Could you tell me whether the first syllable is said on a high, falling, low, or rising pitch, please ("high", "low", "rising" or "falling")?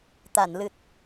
low